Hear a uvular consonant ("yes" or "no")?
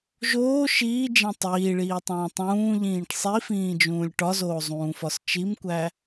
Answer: no